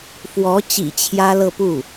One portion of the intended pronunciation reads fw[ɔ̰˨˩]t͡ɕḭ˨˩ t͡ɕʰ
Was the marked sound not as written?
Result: yes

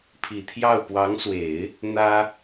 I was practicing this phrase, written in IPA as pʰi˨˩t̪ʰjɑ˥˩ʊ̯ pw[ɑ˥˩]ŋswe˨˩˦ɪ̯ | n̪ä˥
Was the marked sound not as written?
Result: yes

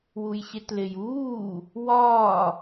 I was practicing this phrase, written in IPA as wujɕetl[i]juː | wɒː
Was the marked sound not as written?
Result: yes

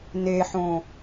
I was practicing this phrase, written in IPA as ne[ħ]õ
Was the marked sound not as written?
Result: no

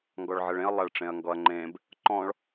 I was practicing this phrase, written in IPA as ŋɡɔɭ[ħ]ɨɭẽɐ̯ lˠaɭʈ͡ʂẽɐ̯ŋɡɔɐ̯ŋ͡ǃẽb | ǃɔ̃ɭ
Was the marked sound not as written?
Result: yes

